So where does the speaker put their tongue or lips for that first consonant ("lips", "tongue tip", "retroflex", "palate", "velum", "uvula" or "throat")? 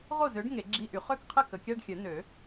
uvula